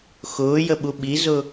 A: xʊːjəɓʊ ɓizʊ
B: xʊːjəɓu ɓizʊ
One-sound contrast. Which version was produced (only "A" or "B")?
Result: B